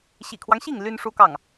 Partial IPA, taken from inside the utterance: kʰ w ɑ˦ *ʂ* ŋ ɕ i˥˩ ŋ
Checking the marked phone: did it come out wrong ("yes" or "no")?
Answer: yes